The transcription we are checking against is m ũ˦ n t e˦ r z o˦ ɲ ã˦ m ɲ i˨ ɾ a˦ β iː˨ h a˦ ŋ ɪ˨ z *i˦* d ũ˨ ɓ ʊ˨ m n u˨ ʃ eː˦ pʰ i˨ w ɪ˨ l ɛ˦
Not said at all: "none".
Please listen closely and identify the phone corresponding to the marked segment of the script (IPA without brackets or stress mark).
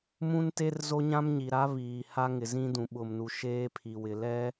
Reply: ĩ˦